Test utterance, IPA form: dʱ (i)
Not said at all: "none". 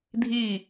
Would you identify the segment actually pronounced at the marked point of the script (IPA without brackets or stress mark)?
i